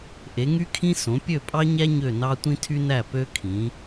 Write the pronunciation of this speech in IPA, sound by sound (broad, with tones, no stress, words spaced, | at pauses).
ʔe˩˧ŋy˦kʰĩ˦ sõ˩˧pʲø˦˨pʼɑ˦ɲæ˦ ɲø˦˨nɑ˦ tʷĩ˦tʰy˦næ˦˨ pø˦ kʰĩ˩˧